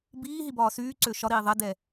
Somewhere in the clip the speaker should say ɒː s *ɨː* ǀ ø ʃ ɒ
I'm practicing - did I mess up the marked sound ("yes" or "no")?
yes